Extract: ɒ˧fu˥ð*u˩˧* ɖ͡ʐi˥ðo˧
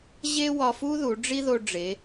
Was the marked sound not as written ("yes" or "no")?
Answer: no